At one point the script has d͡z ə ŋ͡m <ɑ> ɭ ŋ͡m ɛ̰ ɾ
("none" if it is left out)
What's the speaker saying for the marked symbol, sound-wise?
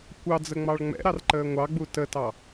ɑ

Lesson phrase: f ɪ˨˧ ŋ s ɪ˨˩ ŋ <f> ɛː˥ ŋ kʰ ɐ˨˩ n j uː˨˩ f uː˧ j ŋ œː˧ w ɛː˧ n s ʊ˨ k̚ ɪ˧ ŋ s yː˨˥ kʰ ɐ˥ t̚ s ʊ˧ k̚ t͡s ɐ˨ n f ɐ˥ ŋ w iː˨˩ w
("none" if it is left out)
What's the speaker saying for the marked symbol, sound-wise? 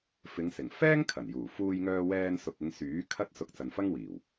f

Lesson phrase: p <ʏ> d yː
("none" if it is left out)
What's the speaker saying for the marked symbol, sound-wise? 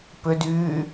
ʏ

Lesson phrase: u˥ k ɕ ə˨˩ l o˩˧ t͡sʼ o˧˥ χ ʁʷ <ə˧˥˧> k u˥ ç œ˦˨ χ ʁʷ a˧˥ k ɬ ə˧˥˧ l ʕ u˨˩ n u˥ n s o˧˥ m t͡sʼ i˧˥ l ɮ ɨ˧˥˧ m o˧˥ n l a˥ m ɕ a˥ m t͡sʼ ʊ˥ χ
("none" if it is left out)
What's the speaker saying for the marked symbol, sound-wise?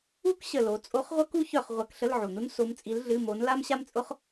ə˥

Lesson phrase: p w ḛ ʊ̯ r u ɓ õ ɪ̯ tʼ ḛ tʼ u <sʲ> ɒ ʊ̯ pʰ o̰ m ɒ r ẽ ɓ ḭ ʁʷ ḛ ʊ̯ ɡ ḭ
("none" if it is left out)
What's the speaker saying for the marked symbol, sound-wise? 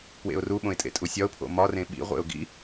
sʲ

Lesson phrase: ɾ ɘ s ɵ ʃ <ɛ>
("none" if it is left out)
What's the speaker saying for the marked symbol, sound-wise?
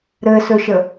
ə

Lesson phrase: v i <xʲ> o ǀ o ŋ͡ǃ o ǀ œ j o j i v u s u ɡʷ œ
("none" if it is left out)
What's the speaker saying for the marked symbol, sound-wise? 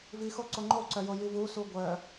x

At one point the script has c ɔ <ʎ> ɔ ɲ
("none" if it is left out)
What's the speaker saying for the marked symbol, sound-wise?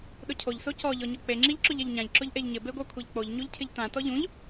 ʎ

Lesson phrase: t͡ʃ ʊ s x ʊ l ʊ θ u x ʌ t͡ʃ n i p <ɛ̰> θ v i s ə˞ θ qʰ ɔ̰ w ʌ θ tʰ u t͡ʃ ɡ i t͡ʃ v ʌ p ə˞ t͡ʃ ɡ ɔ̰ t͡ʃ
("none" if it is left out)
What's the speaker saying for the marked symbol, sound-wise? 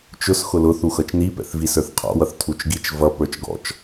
ɛ̰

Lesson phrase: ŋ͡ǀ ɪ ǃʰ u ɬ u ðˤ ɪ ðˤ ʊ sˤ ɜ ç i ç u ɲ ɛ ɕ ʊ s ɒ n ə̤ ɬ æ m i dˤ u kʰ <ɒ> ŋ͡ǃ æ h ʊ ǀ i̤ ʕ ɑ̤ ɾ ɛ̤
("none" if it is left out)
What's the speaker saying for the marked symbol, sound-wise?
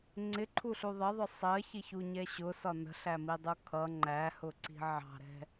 ʌ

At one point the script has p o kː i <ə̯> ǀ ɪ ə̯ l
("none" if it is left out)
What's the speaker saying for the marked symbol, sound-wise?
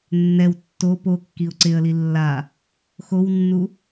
ʊ̯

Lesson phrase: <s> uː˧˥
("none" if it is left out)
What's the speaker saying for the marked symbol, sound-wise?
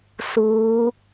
s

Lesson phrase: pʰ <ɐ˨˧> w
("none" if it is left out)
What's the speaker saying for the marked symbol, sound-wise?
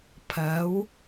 ɐ˨˥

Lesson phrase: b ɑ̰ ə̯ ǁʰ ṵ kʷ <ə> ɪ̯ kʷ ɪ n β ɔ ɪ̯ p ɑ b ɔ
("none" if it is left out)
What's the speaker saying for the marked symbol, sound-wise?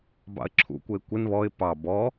ə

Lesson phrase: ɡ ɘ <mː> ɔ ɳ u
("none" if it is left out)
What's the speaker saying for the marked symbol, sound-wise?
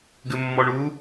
mː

